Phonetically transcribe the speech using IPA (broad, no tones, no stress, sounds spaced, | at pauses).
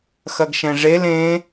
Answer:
x ɐ ɡ ʃ ɛ̃ ʐ e l ẽ